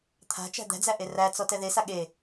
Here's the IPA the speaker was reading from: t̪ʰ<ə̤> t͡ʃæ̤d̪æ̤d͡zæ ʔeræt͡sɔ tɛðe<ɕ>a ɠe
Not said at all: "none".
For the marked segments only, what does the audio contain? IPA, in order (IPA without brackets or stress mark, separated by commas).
a̤, s